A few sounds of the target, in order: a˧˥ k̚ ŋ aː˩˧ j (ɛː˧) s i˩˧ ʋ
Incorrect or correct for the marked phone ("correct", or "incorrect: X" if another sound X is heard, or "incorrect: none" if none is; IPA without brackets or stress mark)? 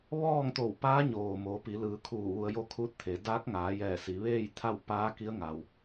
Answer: incorrect: ɛː˧˩